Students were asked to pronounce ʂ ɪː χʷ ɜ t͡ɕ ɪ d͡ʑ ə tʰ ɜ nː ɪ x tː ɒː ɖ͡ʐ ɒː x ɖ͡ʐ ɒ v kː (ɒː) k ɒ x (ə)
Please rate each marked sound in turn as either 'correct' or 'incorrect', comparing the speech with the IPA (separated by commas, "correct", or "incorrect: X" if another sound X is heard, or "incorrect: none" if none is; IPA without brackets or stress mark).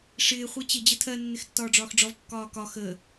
correct, correct